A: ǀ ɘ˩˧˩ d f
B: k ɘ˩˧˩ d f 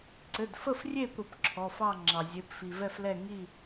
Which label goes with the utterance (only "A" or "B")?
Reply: A